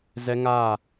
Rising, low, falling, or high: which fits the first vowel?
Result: high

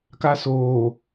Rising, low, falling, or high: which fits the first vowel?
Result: high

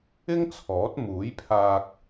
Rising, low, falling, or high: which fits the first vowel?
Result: high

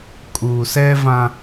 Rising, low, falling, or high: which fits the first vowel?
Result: low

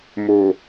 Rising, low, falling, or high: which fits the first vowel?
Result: low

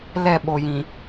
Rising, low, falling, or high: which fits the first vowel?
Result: falling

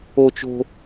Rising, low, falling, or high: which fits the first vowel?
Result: high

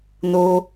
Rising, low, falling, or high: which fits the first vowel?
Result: high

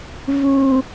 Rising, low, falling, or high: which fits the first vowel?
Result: low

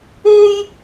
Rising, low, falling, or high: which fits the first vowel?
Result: high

